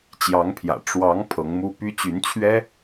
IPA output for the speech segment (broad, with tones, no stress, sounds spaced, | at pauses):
t͡ɕ j ɑ˧˥ ŋ pʰ j ä̰˨˩ ʈ͡ʂ w ɑ˧˥ ŋ pʰ ɤ˧˥ ŋ m u˥ p y˥ t͡ɕ y˧˥ n t͡ɕʰ ɥ ɛ˥